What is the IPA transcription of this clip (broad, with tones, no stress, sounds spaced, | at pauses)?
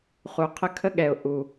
χ u˨ qʰ ə˦ kʰ ə˦ ɠ ɛ˨ ʊ̯ ʔ u˨